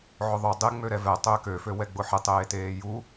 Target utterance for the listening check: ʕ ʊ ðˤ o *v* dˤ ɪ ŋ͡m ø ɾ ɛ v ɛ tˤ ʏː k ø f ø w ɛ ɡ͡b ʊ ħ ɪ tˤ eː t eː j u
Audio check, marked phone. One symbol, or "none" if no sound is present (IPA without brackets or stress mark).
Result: none